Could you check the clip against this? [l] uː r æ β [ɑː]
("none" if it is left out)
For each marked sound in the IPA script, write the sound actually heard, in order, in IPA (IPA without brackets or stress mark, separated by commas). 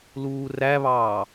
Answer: l, ɑː